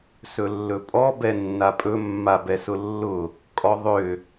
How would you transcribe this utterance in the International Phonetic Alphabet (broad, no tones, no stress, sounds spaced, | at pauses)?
s ɵ lː ɵ pʼ ɔ b ɛ nː a pʼ ɵ mː a b ɛ s ʊ lː ʊ | kʼ ɔ ðˤ ʏ